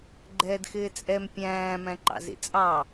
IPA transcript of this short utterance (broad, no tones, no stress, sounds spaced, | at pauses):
ɡ͡ǃ ɛː d x ɪː t͡sʼ ɛ m pʲ æ̃ː m æ̃ ǃ ɑ̰ z ḭ t͡sʼ ɑ